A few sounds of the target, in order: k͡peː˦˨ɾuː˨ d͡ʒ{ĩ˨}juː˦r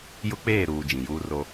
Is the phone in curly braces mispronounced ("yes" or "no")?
no